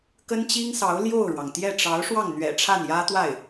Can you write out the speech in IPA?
k ə˥ n t͡ɕ i˥ ŋ s ɑ˧˥ ʊ̯ l j o˥˩ ʊ̯ ɻ w ɑ˩ ŋ t̪ j ɛ˥˩ ʈ͡ʂ ɑ˧˥ ʊ̯ ʂ w ɑ˥˩ ŋ n̪ ɥ ɛ̰˨˩ ʈ͡ʂʰ a˥˩ n j ä˥ t̪ w a˥˩ ɪ̯

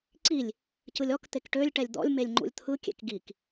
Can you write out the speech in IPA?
ǀ i lʲ | c ɯ lʲ ɔ k t̪ e k ʈ ø lʲ ʈ ɛ lʲ d̪ ɔ̰ lʲ m e lʲ ŋ͡ǃ ṵ lʲ t̪ʰ ɯ kʲ ḛ k ɡ i k

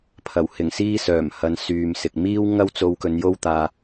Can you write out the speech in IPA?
pʰ ɐ˨˩ w h ɪ˨˩ ŋ s iː˥ s œː˨˩ m h ɐ˨˧ n s yː˨ m s ɪ˨ k̚ m iː˥ w ŋ ɐ˥ w t͡s o˧ w k ɵ˨˧ n j o˥ w t̪ aː˧

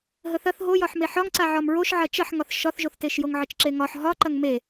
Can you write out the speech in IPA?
ɦ ə θ ɐ θ ɦ o j ɒ ħ m e ħ ɒ ŋ ǀ a ʕ ɒ m ɹ o ʃ ʕ ɐ t͡ʃ ɐ ħ ŋ ɒ θ ʃ ɒ θ ʒ o θ t e ʃ j o ŋ ʕ ə t͡ʃ ǁ e ŋ ɒ ħ ɦ ɒ ǃ ɐ ŋ m e

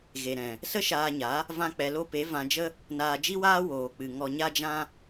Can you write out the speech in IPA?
ɣ e˨ ɾ ɛ̃˨ | s ə˦ ʃ aː˧ ɲ a˨˦ | v ã˧ k͡p ɛ˨ l o˧ p e˨˦ v ã˧ d͡ʒ ə˦ | n aː˧ d͡ʒ i˦ w aː˦ w oː˨ k͡p ɨ˨ ŋ ɔ˨ ɲ a˧ d͡ʒ ã˧

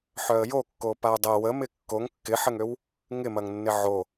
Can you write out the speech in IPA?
ħ œ ə̯ j o kː o p a ʊ̯ dˤ ə w ə m ɪ kː o ŋ kː ɪ ħ ə ŋ ø w | ŋ ɪ m ɐ ŋ nː ɪ ʕ o

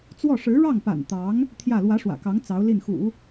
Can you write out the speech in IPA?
t͡s w ɔ˥˩ ʂ ɻ̩˧˥ ɻ ɑ˥˩ ŋ p a̰˨˩ n t̪ ɑ˧˥ ŋ | t̪ʰ j ä˥˩ l w ä˧˥ ʂ w ä̰˨˩ k ɑ˧˥ ŋ t͡s ɑ˧˥ ʊ̯ l i˥˩ n x ṵ˨˩˦

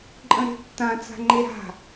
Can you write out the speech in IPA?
ǃʼ ə̃ ɾ e̤ tː ã t͡s a̤ ŋ͡ǃ e ɾ a̤

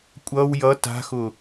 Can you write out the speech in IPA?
kʷʼ ʌ w j ʌ t a̤ x ʊ

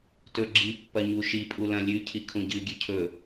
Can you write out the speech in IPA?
t ɵ ɡ͡ǁ i pː ɐ ɲ u ʃ i pʼ u l ɐ̃ lʲ ʉ cʰ i kʰ ũ ɟ ɨ ɡʲ ʉ cʰ ɵ

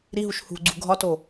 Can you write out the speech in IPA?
ɾ i ɦ u ʃ h ṳ ɡ͡ǀ ṳ ɡʱ ɒ t o

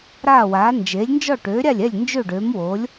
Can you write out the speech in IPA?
ɾ aː˥˩ w aː˩˥ n d͡ʒ eː˩˥ lʲ n d͡ʒ ɔ˥˩ ʈ øː˩˥ ɾʲ a˥˩ lʲ ɛ˥˩ lʲ n d͡ʒ ø˥˩ ɖ øː˩˥ m w oː˩˥ lʲ

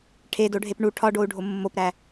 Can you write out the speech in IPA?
ʈʰ e d o ɖʱ e p ɳ u ʈʰ ɒ ɖ o u̯ ɖʱ o mː o p ɾ æ

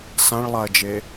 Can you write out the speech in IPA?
s ã ɭ lˠ a ɐ̯ d͡ʒ e

